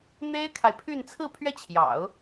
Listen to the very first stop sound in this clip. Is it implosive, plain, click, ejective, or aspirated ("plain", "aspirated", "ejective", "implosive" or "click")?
aspirated